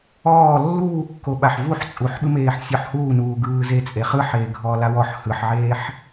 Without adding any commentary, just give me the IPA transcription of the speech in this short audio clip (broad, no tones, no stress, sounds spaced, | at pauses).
ɔː lː uː kː o ɓ a ħ v u ħ t͡sʼ u ħ ɓ ɯ m eː ħ sʲ ɔ ħ h uː n uː ɡ ɯː z e t͡sʼ e χ ɯ ħ eː ɡʱ ɔː l a w ɔ ħ h ɯ ħ ʕ eː ħ